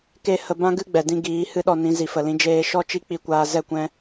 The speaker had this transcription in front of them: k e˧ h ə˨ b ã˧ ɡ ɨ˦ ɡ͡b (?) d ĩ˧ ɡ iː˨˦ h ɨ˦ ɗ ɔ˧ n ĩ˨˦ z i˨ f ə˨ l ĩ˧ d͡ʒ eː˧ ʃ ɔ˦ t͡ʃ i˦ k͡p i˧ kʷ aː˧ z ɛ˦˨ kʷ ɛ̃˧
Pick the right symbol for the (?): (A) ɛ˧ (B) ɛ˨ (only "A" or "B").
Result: B